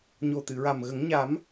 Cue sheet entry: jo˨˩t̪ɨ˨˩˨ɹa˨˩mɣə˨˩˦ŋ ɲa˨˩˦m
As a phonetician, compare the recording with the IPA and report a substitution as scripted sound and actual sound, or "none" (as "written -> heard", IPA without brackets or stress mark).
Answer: j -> ɲ